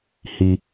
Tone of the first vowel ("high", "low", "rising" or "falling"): low